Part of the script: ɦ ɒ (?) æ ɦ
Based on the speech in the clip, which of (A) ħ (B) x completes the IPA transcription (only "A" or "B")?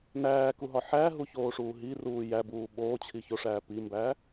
A